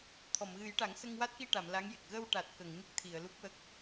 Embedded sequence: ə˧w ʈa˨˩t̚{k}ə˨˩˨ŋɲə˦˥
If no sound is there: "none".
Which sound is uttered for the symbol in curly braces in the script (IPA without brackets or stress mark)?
k